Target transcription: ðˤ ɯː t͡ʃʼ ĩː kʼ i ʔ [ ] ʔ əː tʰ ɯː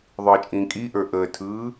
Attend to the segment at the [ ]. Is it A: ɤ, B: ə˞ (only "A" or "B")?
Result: B